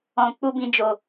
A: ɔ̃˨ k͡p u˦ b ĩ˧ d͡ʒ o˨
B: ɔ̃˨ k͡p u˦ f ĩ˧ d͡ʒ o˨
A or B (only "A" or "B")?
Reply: A